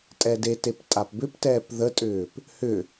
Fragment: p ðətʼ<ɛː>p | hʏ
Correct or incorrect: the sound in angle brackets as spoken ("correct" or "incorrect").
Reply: incorrect